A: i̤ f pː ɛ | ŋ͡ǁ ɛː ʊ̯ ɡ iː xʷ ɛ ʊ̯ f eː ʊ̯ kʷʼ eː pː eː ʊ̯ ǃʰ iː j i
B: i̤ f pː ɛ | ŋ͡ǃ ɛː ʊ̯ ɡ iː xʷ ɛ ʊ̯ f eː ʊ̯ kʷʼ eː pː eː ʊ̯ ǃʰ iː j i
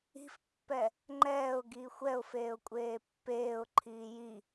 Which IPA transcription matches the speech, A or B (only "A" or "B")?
B